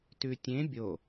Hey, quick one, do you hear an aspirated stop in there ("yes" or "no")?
no